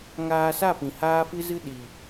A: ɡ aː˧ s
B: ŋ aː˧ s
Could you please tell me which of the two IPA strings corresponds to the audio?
B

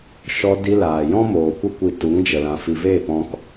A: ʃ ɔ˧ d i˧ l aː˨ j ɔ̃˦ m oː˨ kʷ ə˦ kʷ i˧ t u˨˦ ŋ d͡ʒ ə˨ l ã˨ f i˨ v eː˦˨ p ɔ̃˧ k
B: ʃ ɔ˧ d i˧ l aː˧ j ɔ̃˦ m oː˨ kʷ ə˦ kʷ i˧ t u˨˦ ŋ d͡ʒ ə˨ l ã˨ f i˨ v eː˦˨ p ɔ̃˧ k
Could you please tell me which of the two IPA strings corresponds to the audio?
A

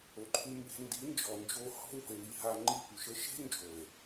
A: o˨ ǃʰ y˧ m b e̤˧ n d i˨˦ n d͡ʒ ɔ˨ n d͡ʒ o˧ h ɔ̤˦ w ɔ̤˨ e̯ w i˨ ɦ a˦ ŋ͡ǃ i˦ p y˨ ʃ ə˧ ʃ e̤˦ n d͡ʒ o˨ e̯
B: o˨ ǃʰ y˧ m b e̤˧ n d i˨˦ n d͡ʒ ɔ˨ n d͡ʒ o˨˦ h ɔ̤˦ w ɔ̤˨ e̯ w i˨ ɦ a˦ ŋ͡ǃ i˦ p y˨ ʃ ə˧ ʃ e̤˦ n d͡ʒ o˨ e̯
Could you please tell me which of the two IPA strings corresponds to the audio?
A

